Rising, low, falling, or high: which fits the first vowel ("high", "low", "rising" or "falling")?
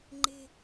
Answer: low